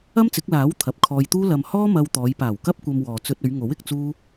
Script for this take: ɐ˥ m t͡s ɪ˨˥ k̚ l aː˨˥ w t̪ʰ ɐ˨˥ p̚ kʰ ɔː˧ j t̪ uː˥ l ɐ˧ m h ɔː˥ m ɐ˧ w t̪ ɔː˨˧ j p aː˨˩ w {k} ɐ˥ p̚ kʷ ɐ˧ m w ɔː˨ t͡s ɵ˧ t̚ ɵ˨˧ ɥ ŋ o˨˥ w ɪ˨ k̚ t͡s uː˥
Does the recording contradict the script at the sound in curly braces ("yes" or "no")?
no